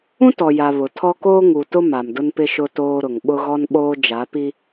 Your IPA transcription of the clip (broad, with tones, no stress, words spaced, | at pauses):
ũ˦tɔ˨ja˨ βʊ˨tʰɔ˦ koː˦ŋu˨tʊ˦ ma˨mdʊ˦npɪ˦ʃʊ˦ toː˦ɾʊ˨ŋ ɓʊ˦ɣɔ˦nɓoː˦ d͡ʒa˨˦pi˦